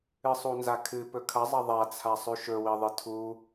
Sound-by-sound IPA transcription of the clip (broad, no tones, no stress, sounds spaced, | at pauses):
ɨ sˤ u n z a kʰ ɨ p ɵ kʰ ɐ zˤ ɐ ðˤ a t͡sʰ a sˤ ʉ ʃ ɵ w i ðˤ ɨ tʰ u